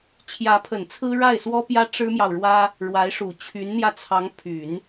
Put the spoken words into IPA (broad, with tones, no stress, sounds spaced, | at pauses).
t͡ɕʰ j ä˧˥ pʰ ə˨˩ n t͡sʰ ɹ̩˥ ɻ a˥˩ ɪ̯ s w ɔ˥ p j ä˥ ʈ͡ʂ ɻ̩˥ m j ɑ˨ ʊ̯ ɻ w ä˥ | ɻ w a˧˥ ɪ̯ ʂ u˨˩ t͡ɕʰ y˧˥ n n̪ j ä˧ t͡sʰ ɑ˧˥ ŋ pʰ y˨˩˦ n